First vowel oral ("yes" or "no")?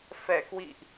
yes